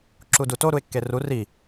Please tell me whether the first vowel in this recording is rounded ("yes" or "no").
yes